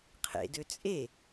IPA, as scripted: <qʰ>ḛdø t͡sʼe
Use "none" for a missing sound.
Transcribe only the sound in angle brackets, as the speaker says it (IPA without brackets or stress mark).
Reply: qʰ